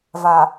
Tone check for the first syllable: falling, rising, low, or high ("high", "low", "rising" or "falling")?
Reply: low